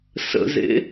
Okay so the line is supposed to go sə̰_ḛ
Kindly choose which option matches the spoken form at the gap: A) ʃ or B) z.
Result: B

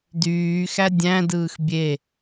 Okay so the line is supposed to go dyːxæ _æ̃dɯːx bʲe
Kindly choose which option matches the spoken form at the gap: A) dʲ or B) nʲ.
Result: A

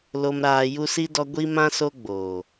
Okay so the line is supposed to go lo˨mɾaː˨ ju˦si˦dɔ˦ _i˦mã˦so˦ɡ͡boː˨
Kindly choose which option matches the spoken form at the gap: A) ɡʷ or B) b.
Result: A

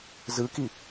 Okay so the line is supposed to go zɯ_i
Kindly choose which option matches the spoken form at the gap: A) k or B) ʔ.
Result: A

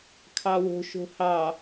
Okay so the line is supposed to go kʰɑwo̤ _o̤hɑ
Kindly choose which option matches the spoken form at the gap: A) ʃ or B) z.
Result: A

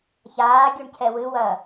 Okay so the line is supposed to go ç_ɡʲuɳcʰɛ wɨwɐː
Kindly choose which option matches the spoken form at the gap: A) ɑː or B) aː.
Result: B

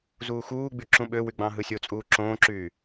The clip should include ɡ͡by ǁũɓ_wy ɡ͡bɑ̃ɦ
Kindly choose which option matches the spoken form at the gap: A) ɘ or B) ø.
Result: B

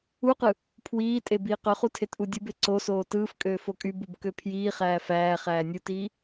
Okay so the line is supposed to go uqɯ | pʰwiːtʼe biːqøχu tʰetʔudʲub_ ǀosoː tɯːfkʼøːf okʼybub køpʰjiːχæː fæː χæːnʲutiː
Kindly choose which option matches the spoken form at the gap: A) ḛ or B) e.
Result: B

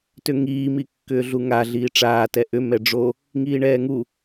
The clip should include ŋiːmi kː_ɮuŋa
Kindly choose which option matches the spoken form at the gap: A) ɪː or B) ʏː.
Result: B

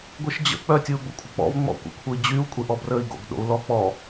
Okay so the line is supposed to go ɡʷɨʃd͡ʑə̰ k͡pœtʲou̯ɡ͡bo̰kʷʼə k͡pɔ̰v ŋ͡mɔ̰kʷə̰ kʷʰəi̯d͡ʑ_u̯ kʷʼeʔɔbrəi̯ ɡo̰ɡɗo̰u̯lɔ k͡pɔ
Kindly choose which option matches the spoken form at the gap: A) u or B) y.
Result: B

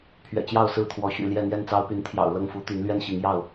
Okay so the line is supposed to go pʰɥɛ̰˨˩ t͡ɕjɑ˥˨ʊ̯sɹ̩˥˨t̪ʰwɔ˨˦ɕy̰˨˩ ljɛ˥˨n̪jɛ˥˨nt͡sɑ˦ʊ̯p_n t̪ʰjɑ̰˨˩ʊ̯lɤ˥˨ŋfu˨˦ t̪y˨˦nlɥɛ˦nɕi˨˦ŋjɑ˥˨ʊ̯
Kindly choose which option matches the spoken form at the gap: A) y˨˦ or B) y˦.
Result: A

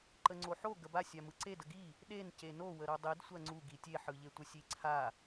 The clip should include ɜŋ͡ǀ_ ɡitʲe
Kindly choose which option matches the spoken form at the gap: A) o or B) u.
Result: B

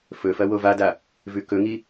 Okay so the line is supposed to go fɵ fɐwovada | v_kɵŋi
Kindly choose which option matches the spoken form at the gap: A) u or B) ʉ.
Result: B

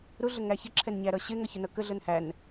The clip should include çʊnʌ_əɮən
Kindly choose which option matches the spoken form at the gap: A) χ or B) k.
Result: B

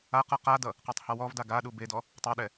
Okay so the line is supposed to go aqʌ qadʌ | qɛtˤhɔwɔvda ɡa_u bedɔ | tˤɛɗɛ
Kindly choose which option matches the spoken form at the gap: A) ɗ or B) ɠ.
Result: A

